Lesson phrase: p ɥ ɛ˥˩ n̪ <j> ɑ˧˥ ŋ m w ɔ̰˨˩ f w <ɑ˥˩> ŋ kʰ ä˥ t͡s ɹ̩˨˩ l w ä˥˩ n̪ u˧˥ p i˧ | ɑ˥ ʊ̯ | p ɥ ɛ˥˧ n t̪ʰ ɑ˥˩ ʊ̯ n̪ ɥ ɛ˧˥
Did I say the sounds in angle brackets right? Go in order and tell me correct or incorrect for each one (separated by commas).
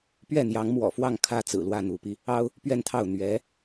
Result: correct, correct